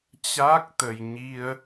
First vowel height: low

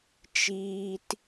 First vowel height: high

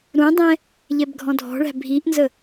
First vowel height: high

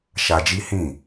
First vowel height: low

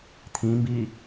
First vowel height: high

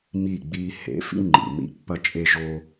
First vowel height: high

